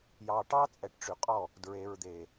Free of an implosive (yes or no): yes